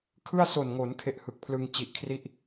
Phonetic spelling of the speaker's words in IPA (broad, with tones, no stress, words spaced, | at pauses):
kʰɯ˥˩a̯so˨˩nŋo˩˦n kʰe˥˩ʔhɯ˨˩k̚pʰlɯ˧ŋ t͡ɕi˨˩ʔkʰri˥˩ʔ